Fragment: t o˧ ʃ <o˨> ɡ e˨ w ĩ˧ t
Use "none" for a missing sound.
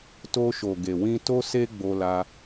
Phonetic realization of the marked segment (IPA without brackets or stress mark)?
o˨